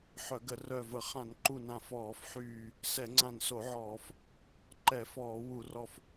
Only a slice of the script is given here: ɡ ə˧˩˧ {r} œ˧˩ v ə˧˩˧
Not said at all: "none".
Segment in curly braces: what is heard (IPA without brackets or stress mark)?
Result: r